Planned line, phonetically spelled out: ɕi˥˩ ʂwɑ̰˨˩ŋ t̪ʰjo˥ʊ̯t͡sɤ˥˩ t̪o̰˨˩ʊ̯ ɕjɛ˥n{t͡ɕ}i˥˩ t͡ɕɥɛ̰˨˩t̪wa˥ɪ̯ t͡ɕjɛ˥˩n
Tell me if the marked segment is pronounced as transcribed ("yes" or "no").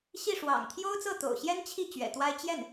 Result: no